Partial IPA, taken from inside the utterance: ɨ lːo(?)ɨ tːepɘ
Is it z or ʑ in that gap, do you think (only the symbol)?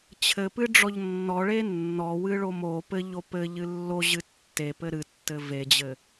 ʑ